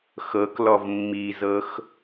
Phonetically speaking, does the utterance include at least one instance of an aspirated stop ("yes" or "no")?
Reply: no